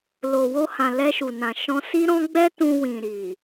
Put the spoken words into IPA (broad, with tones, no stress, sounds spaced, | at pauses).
l o˨ w o˧ h ã˨ l ɛ˧ ʃ u˨ n ã˨ ʃ ɔ̃˧ s i˦ ɾ ɔ̃˦ ɡ͡b ɛ˦ t ũ˧ w ĩ˨ ɾ i˨